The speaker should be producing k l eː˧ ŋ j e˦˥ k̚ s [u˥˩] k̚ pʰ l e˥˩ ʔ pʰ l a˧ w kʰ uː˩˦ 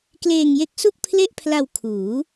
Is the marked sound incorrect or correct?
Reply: correct